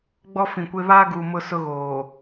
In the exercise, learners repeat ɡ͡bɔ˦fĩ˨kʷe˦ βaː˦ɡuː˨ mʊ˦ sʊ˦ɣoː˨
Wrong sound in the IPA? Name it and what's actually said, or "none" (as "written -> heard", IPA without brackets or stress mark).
none